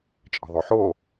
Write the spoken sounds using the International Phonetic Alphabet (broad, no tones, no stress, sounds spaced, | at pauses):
t͡ʃʼ ə̤ ðˤ o ħ o